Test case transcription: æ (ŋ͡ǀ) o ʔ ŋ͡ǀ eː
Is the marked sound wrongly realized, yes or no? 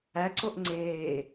yes